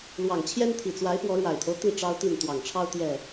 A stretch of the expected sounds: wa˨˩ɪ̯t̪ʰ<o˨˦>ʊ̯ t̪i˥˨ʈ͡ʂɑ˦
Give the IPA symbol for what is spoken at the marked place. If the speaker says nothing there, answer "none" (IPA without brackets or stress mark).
o˦